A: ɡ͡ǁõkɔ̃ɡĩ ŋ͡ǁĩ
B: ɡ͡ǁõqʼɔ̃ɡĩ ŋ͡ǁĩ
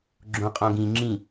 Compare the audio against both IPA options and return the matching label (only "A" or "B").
B